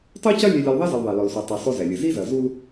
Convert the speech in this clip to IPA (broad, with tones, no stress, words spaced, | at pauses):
tˤo˦cɐ˦ lʲe˦lʲɐ˦l ðˤe˦zɘ˨l ðˤɛ˨lɔ˨lsu˨ tˤi˨ sˤo˦zɛ˨lʲɘ˨ zi˦zɐ˨zu˦l